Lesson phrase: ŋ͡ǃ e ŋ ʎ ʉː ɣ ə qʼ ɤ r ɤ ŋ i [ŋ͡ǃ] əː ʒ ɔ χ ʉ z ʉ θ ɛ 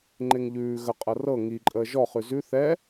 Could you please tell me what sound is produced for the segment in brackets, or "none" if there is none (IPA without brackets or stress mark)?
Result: ǃʼ